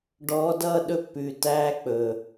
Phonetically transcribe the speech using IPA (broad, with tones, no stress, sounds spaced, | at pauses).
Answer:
ɖ ɔː˧˥ d ʌː˧˥˧ ɗ ɵ˥˧ pː ʉ˨˩ t æː˧˥˧ k͡p ɵː˨˩